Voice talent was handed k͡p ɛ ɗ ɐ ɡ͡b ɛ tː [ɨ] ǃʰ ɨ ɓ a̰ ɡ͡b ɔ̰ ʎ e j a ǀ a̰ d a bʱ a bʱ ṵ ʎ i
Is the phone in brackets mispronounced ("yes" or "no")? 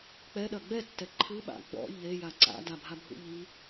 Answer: yes